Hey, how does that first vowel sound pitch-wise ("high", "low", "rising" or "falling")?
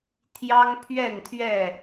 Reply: high